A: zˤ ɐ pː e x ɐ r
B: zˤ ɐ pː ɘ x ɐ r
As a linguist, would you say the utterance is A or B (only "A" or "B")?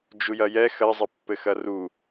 B